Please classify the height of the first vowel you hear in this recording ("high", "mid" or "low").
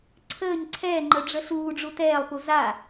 mid